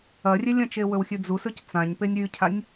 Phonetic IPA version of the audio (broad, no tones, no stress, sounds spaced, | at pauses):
ɐ rʲ e lʲ ɐ̃ t͡ʃ e w ɵ w xʲ ʉ d͡z u s ɵ c t͡s ã ɲ p e nʲ ɾʲ ʉ cʰ a nʲ